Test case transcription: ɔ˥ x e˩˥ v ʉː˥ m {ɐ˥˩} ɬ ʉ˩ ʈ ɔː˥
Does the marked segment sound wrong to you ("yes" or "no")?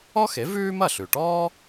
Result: no